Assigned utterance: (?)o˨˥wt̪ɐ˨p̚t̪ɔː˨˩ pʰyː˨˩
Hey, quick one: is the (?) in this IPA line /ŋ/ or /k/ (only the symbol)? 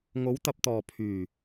ŋ